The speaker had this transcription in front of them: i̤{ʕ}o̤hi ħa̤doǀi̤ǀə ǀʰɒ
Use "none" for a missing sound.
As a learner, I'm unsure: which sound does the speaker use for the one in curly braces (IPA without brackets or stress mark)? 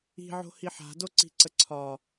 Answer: ʕ